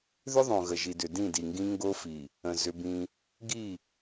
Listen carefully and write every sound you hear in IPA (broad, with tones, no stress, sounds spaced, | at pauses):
ð ʏ˦ ðˤ õ˨ ɣ ə˨ ʒ i˨ d ʏ˨ d ĩ˦˨ d i˨ ŋ ɡ ĩ˦ ŋ ɡ o˦ f i˨ | ə̃˨ z ʏ˦ b ĩ˦ | ɡ i˦˨